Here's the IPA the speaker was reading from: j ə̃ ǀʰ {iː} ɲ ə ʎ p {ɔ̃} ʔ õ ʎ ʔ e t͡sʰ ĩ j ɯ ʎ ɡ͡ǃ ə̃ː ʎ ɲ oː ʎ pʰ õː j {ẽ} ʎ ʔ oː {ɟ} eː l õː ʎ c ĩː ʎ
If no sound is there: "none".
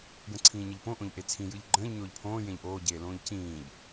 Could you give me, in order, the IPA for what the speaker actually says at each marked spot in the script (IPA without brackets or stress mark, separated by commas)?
ĩː, õ, ẽ, ɟ